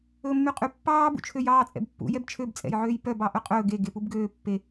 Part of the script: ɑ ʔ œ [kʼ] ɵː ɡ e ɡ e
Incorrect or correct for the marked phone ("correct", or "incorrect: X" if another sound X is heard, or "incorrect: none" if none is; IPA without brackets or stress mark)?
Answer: incorrect: qʼ